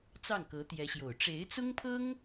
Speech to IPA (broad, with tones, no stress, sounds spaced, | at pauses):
t͡s ɑ˥˩ ŋ k ɤ˧˥ t̪ j ɛ˧˥ ɕ j o˨˩ ʊ̯ ʈ͡ʂ e˧˥ ɪ̯ t͡s ʊ˥ ŋ pʰ ɤ˥ ŋ